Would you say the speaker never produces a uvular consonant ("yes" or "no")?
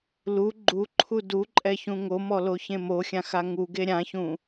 yes